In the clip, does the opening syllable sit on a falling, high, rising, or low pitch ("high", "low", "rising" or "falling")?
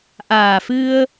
low